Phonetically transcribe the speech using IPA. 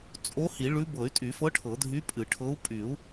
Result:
t͡sʼ o˧˥ h i˨˩˦ ɭ ʉ˧˥ b ɤ˨˩˦ y̯ tʼ y˨˩˦ f ɤ˧˥ ʈʰ ɤ˨˩˦ dʱ y˧˥ pʼ ɨ˨˩˦ ʈʰ ɤ˧˥ u̯ pʼ y˨˩˦ u̯

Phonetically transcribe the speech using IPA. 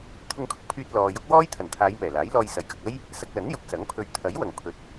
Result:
t̪ʰ ʊ˧ ŋ kʰ ʊ˧ k̚ pʰ yː˧ t̚ l ɔː˨ j ʊ˥ k̚ w ɔː˥ j t̪ʰ ɐ˨˩ n t̪ʰ aː˨˧ j m ɛː˨˩ l aː˨˥ j l ɔː˧ j s ɐ˨˩ j k ɐ˨ k̚ ɐ˥ j | s ɐ˧ k̚ l ɐ˨˥ n j ʊ˨˥ k̚ s ɐ˨˥ ŋ pʰ ɵ˧ ɥ t̪ʰ ɐ˨˥ j w ɐ˨˩ ŋ pʰ ɵ˨˥ t̚

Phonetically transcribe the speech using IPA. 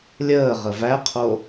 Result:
lʲ əː ʁ ə v æ qʰ o

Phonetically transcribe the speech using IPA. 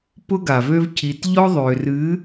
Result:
p ʊ˦ ɡ a˨ v ø˦ v cʰ i˨ t ʎ ɔ˦ ðˤ ø˨ r ɨ˨˦

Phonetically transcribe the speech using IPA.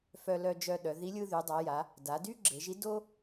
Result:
f œ˧ l œ˧ d͡ʒ œ˧ ɗ œ˩˧ ð i˧˥ lʲ ɯ˧ ð y˩˧ dˤ a˩˧ j a˩˧ | d a˩˧ d y˥ ɡ͡ǁ e˩˧ ʒ i˧˥ d o˥

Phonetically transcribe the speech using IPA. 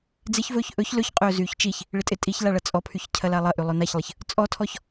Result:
d͡z ɪ ç v ɵː ç ʔ ɵ ç l ɵ ç qʼ ɵː z yː ç t͡ʃ i ç | ɭ ɪ tʼ ɪ tʼ i ç l a ɭ ɐ t͡sʼ ɔ pʰ y ç cʰ ɐ l a lˠ ɐ ʔ y lˠ ɵ n a ç lˠ ɪ ç | t͡sʼ ɔ tʰ ɔ ç

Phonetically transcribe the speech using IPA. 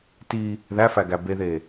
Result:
t i | ð æ f æ ɡ æ b e ð e

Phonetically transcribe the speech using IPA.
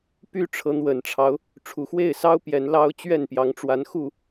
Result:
p y˦ ʈ͡ʂʰ ɤ˨˦ n̪ w ə˨˩ n ʈ͡ʂʰ ɑ˦ ʊ̯ | ʈ͡ʂʰ u˨˩ x w e˥˨ ɪ̯ s ɑ˦ ʊ̯ p j ɛ˨˦ n l ɑ˦ ʊ̯ t͡ɕ ɥ ɛ˥˨ n p j ɑ˨˦ ŋ ʈ͡ʂ w a˨˦ n x u˥˨

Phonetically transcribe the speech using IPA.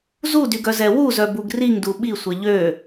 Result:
z u d y ɡ œ z ɛ w u z œ b u ɡ r i ŋ d u ɓ i sʷ ɛ ʎ ø

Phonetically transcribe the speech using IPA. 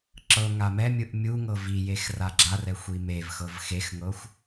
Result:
ǁ ɤ ŋ a m ɛ mʲ ɯ ʔ mʲ u ŋ ɤ v i j e x r a ɡ͡ǁ a r ɛ xʷ i m e v x ɤ v x e x ŋ ɤ xʷ

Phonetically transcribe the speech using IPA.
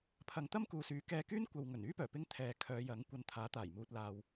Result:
pʰ ɐ˨ ŋ t̪ ɐ˥ m k uː˨ s yː˨˥ k ɛː˧ k yː˥ n kʷ ɐ˨ w ŋ ɵ˨˩ n yː˥ p œː˨˩ p ɪ˧ ŋ t̪ʰ ɛː˨ kʰ œː˨˧ j ɐ˨˥ ŋ kʷ ɐ˧ n t̪ʰ aː˨˥ t̪ aː˨˩ j m uː˨ t̚ l aː˨ w

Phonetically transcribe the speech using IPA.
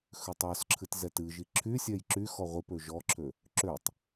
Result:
x ø tˤ ɔ s ǁʰ ɨ t z ɛ t ɨ ʒ i ǁʰ y sʲ ɛ j ǁ y x ɔ ʁʷ i p ø ʒ ɔ ǁʰ ø | ǁ ø tˤ

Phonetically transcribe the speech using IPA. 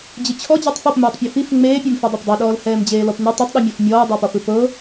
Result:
d͡ʑ ɯ t͡ɕʰ ɔ d͡ʑ ɔ tˤ f ɔ p m ɛː tˤ pʲ ɔ f i f ŋ͡m eː pʲ e m f i dˤ e p dˤ ɤ ɗ ɔː l h ɛː m d͡ʑ eː l ɔ p n i tˤ ɔ tˤ ɗ ɯ mʲ ɔ f mʲ ɔː dˤ ɤ p ɔ f ɯ p ɤ

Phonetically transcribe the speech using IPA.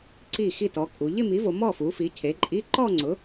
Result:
ǀ i˥˩ x i˥˩ t ɔ˩˥ kʼ u˩˧ ʎ ɪ˥˧ m i˩˥ v o˩˧ m ɔ˥˩ f u˩˥ f i˩˥ cʰ e˩˥ ǃʼ i˧˥˧ ǃ ɔ˥˧ ŋ͡ǀ ʊ˩˥

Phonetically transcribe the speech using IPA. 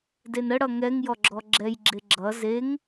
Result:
d e n ə ɽ ʌ ŋ ɛ ŋ j ɔ ɡ͡ǁ ɔ ɡ͡ǁ ɛ j ɡ͡ǁ e ɡ͡ǁ ʌ z e ŋ

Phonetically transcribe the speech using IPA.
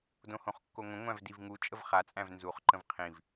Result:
d õ h õ χ kː o ŋʷ ə̃ ŋʷ æ̃ v d i v ŋ u t͡ʃʼ ə v χ a t͡sʼ æ̃ v n z u χ ǃ ə̃ v qʰ ĩ v

